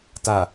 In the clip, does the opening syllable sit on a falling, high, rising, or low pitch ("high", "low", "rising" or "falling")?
low